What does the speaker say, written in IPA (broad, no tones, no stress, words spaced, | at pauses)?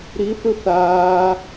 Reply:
ɾiθɯ θaː